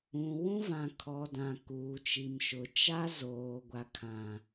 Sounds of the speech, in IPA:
ũ˨ w ũ˦ v ã˨ kʰ ɔ˨ d ã˨ k uː˨ t͡ʃ i˨ m ʃ ʊ˨ t͡ʃ a˦ z oː˨ ɡʷ a˨ kʰ ã˨

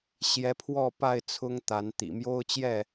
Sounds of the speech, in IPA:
ɕ j ɛ˨˦ pʰ w ɔ˥˨ p a˥˨ ɪ̯ t͡sʰ ʊ˦ ŋ t̪ a˨˦ n t̪ ḭ˨˩ m j o˦ ʊ̯ t͡ɕ j ɛ˥˨

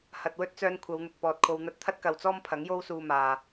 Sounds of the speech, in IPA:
h ɐ˨ t̚ w ɵ˥ t̚ t͡s œː˧ n kʷʰ ɐ˨˧ w n̪ ʊ˨ k̚ p ɔː˨ t̚ kʰ o˧ w n̪ ɐ˧ t̚ t̪ʰ ɐ˥ t̚ k ɐ˨ w t͡s ɔː˥ m pʰ ɐ˨˥ ŋ j o˥ w s uː˧ m aː˨

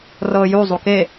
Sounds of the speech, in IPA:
r ɤː j u zˤ u k e

